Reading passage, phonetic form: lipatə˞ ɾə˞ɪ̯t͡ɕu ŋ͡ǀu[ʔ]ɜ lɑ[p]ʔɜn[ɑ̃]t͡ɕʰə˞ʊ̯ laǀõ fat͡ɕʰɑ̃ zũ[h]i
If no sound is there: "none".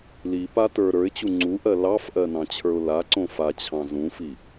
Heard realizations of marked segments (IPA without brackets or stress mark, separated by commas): ʔ, f, ɑ̃, f